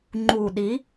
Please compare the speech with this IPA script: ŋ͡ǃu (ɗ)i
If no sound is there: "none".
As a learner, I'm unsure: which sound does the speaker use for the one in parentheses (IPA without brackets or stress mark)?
ɗ